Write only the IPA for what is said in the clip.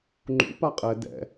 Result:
ŋ͡ǃ ṵ p a qʼ ɛ d ɛ̰

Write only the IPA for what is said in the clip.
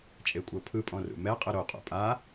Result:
t͡ʃʼ e kʷʼ ɤ pʰ ɯ pʼ ɔ̃ r ṵ m ɛ qʼ ɯ ɾ o qʼ ṵ pʼ a

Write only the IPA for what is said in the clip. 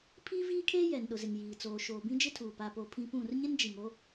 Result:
pʰ iː˦ v iː˦ kʰ eː˦ j ɛ˨ n ɗ ʊ˨ z ɪ˨ ŋ j iː˨ t͡s oː˨ ʃ oː˨ b ĩ˦ d͡ʒ ɪ˦ tʰ uː˨ p a˦ p o˦ pʰ ĩ˦ p ũ˦˨ r ɲ ɪ˦ n d͡ʒ i˨ ŋ o˦

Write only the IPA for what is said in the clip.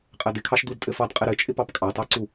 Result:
qʼ ɛ d ɪ kʰ ɑ ʃ d u d tʼ ɘ f ɑ d qʼ ɪ ɾ ɘ t͡ʃʼ ɪ p ɑ p kʼ ɑ t ɑ ǀ u

